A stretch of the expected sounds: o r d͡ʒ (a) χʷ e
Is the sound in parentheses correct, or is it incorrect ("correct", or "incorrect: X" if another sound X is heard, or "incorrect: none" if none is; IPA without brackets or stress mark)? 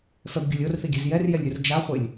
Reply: correct